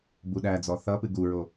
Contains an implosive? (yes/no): yes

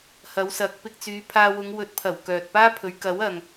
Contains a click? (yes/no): no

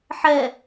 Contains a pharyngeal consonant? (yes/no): yes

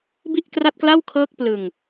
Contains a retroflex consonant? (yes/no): no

